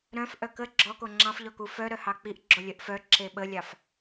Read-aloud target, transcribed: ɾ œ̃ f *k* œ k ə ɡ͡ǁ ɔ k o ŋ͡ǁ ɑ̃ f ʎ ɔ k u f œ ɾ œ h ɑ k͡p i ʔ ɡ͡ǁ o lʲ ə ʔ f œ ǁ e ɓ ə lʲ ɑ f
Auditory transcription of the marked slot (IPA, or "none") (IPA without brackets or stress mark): ʔ